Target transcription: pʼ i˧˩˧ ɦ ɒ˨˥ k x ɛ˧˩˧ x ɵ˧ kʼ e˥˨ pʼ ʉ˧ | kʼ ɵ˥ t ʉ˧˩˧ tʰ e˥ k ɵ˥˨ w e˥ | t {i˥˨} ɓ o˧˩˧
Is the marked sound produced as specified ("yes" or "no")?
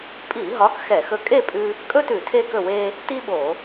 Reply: no